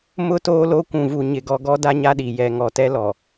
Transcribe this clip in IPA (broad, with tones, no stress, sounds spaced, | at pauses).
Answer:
m ʊ˦ t oː˦ l o˦ kʷ ũ˨ v u˨ ɲ ɪ˨ ɡ ɔ˨ ɡ ɔ˦ d a˦ ɲ a˦ ɗ i˨ j ɛ˨ ŋ ɔ˨ t ɛ˦ l ɔ˨